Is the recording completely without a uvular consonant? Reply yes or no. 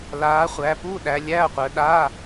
no